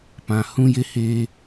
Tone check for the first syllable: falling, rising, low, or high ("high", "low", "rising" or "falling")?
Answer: low